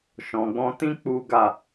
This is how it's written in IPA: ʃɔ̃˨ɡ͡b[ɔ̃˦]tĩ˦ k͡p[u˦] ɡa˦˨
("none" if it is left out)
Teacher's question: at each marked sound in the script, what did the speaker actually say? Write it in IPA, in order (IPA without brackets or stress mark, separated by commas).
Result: ɔ̃˧, u˦